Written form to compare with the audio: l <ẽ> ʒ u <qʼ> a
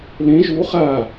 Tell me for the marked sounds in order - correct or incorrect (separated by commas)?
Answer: correct, incorrect